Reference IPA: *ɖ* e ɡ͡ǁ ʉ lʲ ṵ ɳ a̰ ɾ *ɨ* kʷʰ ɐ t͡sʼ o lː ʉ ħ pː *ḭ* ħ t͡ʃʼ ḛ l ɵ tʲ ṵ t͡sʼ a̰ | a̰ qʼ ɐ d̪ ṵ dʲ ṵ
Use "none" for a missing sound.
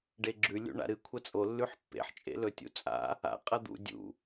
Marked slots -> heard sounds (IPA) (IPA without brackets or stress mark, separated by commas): ɖ, ɨ, ḛ